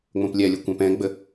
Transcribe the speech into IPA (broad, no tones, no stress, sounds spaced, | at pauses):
ŋ͡m õ p lʲ ɛ lʲ o kʷ ɛ̃ p ɛ̃ ɡ͡b ə